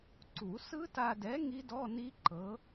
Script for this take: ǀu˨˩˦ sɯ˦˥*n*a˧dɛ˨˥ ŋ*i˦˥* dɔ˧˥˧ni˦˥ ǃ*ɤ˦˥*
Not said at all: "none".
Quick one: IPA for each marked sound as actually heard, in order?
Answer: t, i˦˥, ɤ˨˥

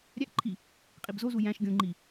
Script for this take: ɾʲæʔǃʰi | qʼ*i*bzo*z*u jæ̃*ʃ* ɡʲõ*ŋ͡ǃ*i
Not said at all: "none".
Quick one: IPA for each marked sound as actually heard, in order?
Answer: i, z, ʃ, ŋ͡ǃ

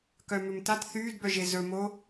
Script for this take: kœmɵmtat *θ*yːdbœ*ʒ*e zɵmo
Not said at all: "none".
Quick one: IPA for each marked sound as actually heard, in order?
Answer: θ, ʒ

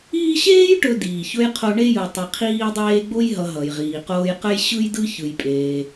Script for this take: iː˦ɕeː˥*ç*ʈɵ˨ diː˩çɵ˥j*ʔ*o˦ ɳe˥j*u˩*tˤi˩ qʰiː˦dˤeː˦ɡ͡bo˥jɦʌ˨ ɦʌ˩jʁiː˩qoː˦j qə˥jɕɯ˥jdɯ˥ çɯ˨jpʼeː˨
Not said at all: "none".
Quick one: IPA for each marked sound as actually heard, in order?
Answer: j, qʰ, ɯ˩

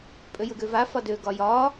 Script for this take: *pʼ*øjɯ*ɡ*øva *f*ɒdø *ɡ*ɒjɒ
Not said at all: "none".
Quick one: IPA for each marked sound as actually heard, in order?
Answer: pʼ, ɡ, f, ɡ

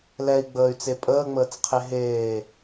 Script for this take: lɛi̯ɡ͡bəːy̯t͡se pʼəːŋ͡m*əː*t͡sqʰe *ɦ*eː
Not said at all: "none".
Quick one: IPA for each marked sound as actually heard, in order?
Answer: əː, ɦ

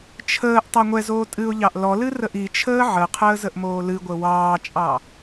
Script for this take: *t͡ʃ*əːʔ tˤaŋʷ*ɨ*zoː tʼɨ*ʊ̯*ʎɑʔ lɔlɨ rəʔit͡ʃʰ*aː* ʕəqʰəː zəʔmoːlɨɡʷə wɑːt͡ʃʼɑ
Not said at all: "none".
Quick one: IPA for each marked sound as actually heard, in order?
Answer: t͡ʃʰ, ɛ, ʊ̯, əː

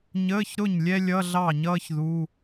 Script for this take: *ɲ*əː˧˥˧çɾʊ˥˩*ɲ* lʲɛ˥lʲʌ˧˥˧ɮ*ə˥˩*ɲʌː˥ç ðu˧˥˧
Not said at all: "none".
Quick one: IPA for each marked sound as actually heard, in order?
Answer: ɲ, ɲ, ɑ˥˩

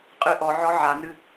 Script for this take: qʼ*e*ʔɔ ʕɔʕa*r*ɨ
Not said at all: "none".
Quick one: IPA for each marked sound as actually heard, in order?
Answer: ɨ, n

